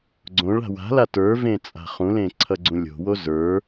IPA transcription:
ɡ͡ǀ õ ɭ a̤ w a̤ l a t ə˞ v ẽ t͡sʼ a̤ χ ũ l ẽ ǀʰ ʌ ɡ͡ǀ ũ lʲ o̤ w o z ə˞

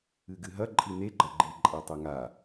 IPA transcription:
ɨ ɡ ɨ ɦ ɐ ǃʼ i n e ɡ͡ǃ ɐ ɡ͡ǃ i ǃʼ a tˤ ɵ ŋ a

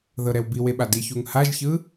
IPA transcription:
ð ɤ ɾ ɛ w b i w e ɓ a d i ç u ŋ h a ʒ ç ɯ

